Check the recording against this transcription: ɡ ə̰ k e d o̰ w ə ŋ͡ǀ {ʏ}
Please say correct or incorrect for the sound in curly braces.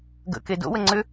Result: correct